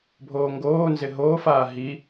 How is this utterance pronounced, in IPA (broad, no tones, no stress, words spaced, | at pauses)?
bʱoːŋɡoːnzɪ ɦoːfaː ɦi